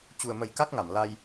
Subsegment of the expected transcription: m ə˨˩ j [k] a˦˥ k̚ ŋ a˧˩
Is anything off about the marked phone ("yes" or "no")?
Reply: no